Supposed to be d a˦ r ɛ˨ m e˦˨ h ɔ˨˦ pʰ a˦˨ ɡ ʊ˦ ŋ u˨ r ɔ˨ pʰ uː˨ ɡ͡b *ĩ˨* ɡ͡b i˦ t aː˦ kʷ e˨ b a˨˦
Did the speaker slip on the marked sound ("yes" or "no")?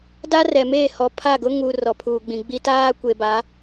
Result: no